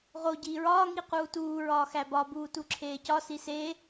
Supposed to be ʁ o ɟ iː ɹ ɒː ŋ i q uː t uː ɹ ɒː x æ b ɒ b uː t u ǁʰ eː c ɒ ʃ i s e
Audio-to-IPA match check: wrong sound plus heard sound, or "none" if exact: ʃ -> s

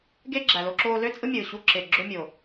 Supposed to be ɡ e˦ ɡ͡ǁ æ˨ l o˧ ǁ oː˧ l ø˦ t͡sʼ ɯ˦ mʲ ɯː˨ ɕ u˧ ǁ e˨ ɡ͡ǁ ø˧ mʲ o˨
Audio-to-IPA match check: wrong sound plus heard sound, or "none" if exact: none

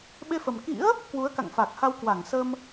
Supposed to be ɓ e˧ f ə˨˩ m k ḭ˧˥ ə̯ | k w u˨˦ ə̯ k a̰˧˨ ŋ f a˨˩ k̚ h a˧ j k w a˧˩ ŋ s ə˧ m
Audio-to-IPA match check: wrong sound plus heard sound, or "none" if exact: j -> w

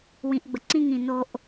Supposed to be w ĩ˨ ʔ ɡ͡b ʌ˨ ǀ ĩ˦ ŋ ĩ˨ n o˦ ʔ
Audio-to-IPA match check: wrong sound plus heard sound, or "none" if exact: ʌ˨ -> ə˨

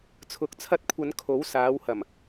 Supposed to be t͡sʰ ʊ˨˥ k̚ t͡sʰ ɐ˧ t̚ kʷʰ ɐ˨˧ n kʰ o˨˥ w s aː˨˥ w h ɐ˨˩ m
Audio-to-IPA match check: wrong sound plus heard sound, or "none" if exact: none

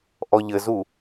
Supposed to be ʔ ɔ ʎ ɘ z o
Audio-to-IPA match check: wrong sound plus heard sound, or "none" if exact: o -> u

